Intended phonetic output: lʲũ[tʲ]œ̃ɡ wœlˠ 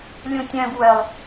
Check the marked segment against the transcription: correct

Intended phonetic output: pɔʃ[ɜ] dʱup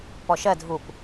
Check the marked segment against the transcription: correct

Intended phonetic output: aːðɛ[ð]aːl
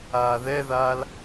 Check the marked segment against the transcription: correct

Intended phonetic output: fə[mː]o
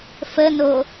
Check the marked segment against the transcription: incorrect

